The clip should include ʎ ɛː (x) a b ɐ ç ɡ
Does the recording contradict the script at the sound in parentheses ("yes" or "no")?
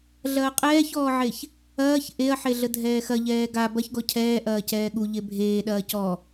yes